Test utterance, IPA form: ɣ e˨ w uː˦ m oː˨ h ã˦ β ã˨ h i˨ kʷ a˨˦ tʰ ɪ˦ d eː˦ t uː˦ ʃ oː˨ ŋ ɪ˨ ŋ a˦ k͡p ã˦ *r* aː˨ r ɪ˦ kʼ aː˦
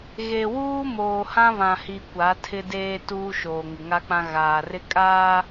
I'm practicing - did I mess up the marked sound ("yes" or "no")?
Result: yes